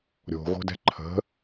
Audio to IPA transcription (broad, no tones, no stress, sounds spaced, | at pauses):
ɾʲ o̤ ɣ o̤ d ɛ̤ ǃʰ ə̤